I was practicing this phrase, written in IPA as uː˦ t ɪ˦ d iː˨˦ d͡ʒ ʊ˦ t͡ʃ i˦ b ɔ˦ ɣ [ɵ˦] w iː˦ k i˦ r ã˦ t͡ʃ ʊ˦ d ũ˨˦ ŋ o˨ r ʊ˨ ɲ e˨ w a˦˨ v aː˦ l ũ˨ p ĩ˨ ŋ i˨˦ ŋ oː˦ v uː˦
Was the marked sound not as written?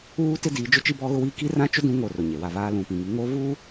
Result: yes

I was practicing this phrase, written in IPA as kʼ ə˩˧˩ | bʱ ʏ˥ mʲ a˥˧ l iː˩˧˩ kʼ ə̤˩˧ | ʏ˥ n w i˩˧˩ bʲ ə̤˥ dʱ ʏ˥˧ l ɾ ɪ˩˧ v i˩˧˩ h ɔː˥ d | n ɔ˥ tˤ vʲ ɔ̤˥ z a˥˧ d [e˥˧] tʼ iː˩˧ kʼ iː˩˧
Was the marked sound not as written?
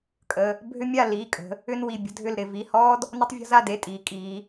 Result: yes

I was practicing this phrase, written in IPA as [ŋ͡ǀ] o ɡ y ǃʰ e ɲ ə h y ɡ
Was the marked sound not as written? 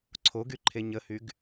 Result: yes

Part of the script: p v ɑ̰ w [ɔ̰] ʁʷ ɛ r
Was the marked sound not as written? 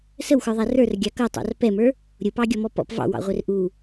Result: yes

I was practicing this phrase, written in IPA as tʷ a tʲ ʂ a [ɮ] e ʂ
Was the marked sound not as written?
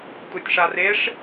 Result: yes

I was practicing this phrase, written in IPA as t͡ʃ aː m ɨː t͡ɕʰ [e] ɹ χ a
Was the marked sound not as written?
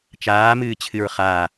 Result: yes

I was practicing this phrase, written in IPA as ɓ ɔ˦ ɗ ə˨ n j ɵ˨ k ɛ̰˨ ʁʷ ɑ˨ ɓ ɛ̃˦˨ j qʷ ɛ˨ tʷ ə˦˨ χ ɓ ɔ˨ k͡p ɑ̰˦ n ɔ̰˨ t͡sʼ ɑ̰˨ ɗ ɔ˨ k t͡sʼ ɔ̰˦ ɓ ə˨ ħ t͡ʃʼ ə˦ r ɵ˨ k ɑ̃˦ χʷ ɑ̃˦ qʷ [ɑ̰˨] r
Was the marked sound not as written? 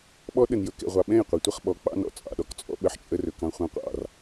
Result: no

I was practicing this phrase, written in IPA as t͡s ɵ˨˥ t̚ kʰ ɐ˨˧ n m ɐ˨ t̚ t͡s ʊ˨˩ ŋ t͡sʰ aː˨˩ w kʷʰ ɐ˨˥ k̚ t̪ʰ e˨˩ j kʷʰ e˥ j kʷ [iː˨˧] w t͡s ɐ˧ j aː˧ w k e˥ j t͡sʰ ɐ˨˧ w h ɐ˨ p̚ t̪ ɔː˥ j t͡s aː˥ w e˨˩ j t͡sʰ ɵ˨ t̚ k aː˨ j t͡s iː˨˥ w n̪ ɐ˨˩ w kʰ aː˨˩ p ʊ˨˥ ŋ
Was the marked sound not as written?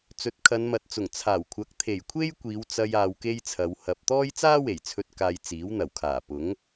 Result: no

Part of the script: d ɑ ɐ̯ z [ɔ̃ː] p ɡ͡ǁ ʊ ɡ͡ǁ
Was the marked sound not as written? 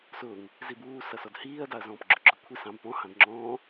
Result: no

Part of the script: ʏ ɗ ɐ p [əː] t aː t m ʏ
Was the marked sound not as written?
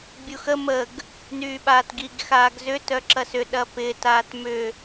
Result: yes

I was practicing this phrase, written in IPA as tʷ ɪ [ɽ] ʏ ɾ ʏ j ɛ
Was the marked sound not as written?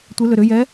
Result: yes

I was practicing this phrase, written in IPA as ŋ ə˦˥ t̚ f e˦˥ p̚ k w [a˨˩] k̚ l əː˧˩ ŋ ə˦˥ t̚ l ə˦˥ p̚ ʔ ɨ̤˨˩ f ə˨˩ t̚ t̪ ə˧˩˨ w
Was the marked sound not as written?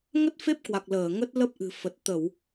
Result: no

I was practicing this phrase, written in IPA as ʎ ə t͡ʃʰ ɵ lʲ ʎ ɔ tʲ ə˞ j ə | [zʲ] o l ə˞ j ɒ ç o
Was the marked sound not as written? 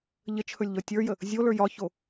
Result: no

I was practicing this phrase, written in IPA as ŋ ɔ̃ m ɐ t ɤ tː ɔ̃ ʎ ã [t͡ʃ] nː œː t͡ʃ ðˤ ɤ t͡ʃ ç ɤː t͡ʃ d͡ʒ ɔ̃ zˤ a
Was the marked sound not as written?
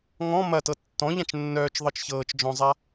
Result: no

